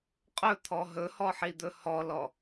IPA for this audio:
qʼɵt̪ʰɔ ɦɵhɔħid̪ɵ hɔlɔ

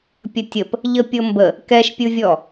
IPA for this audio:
pʲətʲəp | ʎəpʲɤmbə | kɛʃpʲɯvʲɔ

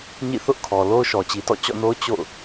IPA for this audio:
ɲḭ˦˨θʊ˦ʔkʰɔ˨ lo˦ʊ̯ʃɔ˨t͡ɕi˨ tɔ̰˦˨t͡ɕɔ̰˦˨no˦ʊ̯ t͡ɕo̰˦˨ʊ̯

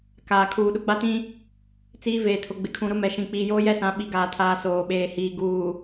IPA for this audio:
kaː˨ kʰuː˨ɗʊ˦ɡ͡ba˦tĩ˦ | t͡siː˦ veː˨tʰʊ˨ɡ͡bɪ˨kʰũ˨ ɾʊ˦mɛ˨ʃĩ˨ k͡piː˨joː˦jɛ˦sã˨˦ ɓi˨ɡaː˨tʰaː˨ soː˨ɓeː˨ hiː˨ ɡuː˨

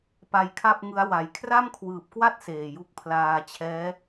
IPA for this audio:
pa˧jkʰa˥˩p̚ŋɯ˦˥a̯ wa˩˦j kʰra˥˩mkʰwɯː˨˩p̚kwa˥˩t̚ seː˨˩ju˥˩k̚ pʰlaː˧t͡ɕʰɛː˦˥

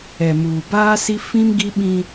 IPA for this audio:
ɛ˨muː˨ baː˦si˦ fĩ˦mɡi˦ɓĩ˦

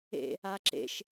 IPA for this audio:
ḛ | aǁḛʃ

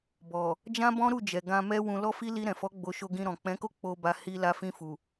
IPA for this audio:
bɔ˨ | d͡ʒã˦bɔ̃˦ɾu˦˨d͡ʒɛ˨ ɡã˧mɛ˦ wũ˧lɔ˦fi˦ li˧ɾɛ̃˨fɔ˨˦ ɡ͡bo˧ ʃo˧ɡĩ˧ɾɔ̃˨ k͡pɛ̃˨˦ko˦ k͡po˧ba˧ hi˧ la˧fĩ˧fu˨

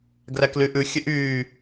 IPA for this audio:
ɡræklyʔʉ xʲøʔyː

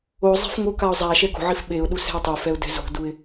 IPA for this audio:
ozˤe̤f ŋokaʊ̯ zˤa ʃɛɡo̤ʕif ɓeʊ̯ɗu sɛ̤ɪ̯tˤofɛʊ̯ dɛ̤zo̤duɪ̯

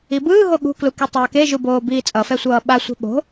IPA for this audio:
ibɯːɦo ɠṳklu ketˤʌːkeʒu boːbiːt͡sʼʌfɛ sʷʌːɓasʷe̤ ɓo̤

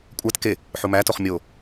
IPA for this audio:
kʷʼæt ke | ħumætoχ mʲo

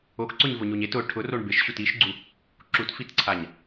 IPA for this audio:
okǀʊɲvʊɲoɲ et ʊ ʈʰʊroɳ bɪʃɕut iʃɡ͡ǀu | ǁutfitǀʰaɲ

